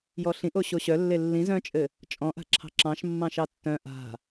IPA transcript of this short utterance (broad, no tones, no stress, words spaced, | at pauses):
jɔɬĩʔo ɕoɕœlːe lːĩz œ̃t͡ʃʼɘ | t͡ʃʼɔ̃ʔa̤ǁʰɑ̤ ǁɑ̃ʃ mːɑ̃ʃɑtːœ̃ ʔa̤